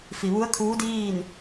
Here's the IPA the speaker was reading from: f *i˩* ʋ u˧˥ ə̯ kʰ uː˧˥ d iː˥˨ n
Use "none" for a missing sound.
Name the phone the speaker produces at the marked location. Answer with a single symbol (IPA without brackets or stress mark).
i˩